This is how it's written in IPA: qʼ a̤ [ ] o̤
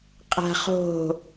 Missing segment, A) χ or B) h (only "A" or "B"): A